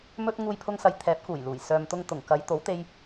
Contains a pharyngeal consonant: no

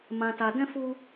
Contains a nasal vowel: yes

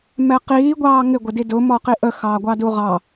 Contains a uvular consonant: yes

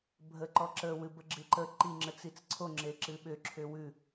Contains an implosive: yes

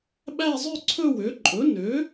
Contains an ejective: yes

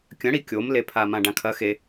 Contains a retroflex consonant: yes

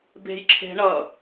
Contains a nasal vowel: no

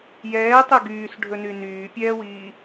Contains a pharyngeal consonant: no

